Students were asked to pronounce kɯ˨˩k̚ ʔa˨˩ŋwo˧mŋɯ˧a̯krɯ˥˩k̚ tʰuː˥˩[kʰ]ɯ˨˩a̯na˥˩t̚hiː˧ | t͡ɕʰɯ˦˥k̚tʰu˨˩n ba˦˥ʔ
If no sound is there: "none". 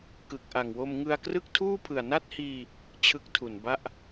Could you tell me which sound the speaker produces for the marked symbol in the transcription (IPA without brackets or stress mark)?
pʰ